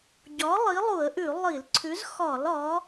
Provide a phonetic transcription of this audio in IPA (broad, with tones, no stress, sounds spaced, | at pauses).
ɟ ɒ˨˥ lˠ i˨˥ lˠ u˧˩˧ ə̯ ʔ ʉ˧˩˧ lˠ i˧˩˧ l ǀʰ ʉ˨˥ z x ɒ˧˩˧ l ɒ˨˥